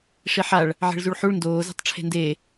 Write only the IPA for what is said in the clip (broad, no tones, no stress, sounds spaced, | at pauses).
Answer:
ʂ i ħ a ɭ | ʕ e̤ ɭ z u ɭ ħ u ɭ n d oː z e̤ tˤ ʈ͡ʂʰ e̤ n d e